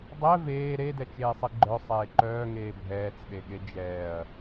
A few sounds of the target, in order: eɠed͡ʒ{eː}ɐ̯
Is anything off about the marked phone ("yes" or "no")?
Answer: yes